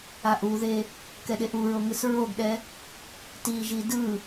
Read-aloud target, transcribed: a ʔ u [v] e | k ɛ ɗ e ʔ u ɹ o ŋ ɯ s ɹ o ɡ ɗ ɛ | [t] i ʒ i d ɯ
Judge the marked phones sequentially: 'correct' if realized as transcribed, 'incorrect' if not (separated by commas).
incorrect, correct